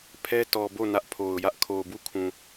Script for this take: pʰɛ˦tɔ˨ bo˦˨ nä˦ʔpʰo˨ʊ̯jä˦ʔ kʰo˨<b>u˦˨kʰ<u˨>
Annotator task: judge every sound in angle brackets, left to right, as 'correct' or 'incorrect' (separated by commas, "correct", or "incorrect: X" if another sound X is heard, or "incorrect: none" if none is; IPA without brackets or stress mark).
correct, incorrect: ũ˨